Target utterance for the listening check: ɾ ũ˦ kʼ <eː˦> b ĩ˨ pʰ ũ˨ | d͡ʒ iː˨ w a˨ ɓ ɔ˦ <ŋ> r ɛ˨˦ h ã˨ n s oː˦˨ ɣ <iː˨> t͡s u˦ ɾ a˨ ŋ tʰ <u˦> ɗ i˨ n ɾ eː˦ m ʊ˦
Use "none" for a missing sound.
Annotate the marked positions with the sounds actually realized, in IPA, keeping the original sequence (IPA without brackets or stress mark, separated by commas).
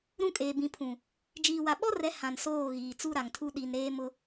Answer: eː˨, none, iː˨, u˦